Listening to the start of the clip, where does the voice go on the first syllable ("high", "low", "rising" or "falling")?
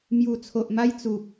low